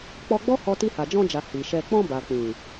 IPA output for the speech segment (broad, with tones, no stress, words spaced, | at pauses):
k͡pɔ˧ɡ͡bɔ˦hɔ˧ ti˧ha˨d͡ʒɔ̃˧d͡ʒa˨ hi˨ʃɛ˧ k͡pɔ̃˧ ba˨k͡pĩ˨